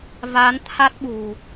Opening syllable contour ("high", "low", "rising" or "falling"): rising